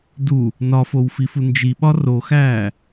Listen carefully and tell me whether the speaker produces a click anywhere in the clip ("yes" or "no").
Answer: no